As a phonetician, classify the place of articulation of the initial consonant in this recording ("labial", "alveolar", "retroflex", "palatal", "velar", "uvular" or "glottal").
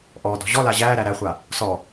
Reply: glottal